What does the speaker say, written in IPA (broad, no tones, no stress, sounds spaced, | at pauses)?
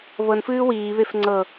β ɤ n f ɨː w iː β e f ŋ͡ǀ ɤ